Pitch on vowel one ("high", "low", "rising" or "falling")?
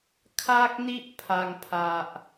high